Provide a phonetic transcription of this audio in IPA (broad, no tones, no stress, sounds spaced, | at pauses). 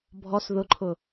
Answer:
bʱ ɔ s ð ʊ ǃʰ ʊ